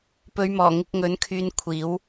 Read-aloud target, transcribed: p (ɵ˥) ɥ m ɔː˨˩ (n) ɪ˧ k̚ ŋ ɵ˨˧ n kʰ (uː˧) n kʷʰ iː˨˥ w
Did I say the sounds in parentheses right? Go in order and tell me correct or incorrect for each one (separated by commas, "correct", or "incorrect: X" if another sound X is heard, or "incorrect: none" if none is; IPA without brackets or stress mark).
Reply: incorrect: ɵ˨˧, incorrect: ŋ, incorrect: yː˧